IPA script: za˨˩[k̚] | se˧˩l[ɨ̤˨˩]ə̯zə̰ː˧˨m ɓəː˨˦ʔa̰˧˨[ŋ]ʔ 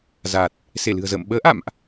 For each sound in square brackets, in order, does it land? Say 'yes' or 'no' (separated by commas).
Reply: no, yes, no